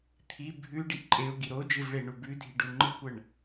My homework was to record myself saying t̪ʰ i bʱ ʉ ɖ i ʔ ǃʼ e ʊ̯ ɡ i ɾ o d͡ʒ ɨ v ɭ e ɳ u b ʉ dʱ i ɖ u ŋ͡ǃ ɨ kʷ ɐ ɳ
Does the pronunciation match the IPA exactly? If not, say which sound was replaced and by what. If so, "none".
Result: none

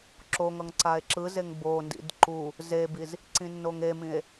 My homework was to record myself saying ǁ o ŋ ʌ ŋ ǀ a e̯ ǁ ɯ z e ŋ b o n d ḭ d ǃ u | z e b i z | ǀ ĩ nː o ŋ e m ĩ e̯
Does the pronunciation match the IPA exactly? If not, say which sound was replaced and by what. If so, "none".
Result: none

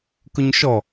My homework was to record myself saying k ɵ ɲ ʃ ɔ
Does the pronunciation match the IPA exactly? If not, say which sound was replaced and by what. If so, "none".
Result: none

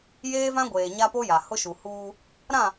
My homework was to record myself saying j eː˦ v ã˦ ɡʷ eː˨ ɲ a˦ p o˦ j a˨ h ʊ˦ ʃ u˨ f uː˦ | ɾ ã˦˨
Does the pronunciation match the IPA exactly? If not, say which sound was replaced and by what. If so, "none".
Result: f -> h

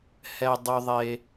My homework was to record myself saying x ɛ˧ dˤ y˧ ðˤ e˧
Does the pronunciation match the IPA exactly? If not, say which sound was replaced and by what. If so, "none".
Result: x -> h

